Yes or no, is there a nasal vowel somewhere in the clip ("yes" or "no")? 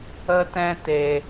yes